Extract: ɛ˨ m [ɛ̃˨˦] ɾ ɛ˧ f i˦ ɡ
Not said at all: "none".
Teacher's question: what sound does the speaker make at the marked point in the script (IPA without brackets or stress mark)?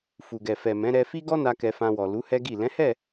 ɛ̃˨˦